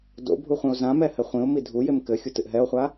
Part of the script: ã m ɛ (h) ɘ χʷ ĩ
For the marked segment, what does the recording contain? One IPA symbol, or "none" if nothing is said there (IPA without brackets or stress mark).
h